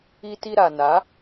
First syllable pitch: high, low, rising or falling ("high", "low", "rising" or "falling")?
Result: high